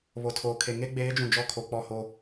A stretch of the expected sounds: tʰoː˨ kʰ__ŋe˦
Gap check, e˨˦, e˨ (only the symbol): e˨